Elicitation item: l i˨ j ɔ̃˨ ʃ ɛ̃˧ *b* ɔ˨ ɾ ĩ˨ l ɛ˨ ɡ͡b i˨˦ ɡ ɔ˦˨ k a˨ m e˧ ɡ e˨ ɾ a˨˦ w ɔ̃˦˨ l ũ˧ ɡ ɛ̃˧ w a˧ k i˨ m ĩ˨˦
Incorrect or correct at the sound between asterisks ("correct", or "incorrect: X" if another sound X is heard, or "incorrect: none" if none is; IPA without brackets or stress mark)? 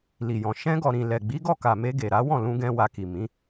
incorrect: ɡ